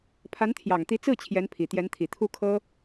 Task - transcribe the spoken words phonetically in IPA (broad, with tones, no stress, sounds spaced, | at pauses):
pʰ a˧˥ n t̪ʰ j ɑ˨˩ ŋ t̪ i˧˥ t͡s ɹ̩˥˩ t͡ɕʰ j ɛ˧˥ n pʰ i˨˩ t̪ j ɛ˧˥ n t̪ʰ i˨˩ t̪ʰ u˥˩ kʰ ɤ˥